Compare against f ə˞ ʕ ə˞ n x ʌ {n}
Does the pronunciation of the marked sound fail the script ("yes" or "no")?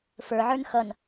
no